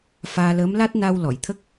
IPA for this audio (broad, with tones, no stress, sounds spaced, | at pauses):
f aː˧ l əː˧˥ m l a˦˥ t̚ n a˧ w l ɔ˨˩˨ j t̪ʰ ə˦˥ k̚